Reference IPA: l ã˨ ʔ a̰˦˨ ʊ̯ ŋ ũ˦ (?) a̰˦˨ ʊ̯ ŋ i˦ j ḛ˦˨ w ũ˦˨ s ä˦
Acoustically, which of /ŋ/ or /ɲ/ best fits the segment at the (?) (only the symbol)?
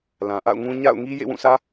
ɲ